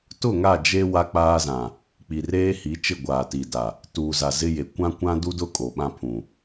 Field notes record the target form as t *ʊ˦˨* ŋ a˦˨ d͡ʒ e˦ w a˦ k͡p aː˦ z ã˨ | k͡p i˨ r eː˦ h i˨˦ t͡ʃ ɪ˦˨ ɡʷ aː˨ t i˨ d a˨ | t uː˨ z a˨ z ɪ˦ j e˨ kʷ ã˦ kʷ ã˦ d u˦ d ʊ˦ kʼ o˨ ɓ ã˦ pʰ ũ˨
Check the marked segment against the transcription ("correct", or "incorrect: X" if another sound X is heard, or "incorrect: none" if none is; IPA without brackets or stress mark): correct